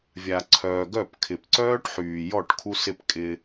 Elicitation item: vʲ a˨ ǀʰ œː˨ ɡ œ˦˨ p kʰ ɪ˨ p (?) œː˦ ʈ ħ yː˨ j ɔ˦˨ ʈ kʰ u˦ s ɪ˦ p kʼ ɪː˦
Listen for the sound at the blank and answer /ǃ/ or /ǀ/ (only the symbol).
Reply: ǀ